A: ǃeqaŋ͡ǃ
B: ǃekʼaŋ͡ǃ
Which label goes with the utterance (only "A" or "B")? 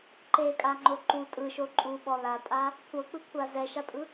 B